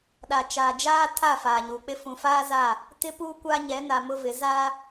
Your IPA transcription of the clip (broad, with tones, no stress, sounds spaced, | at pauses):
ɗ a˨ t͡ʃ aː˨ d͡ʒ aː˦ tʰ a˦˨ f aː˨ ɲ u˨ k͡p ɪ˦ f ũ˨ f aː˦ z a˦˨ | t ɪ˦ p uː˦ kʷ a˦ ɲ ɛ˨˦ n a˨ m ʊ˦ v ɪ˨˦ z a˦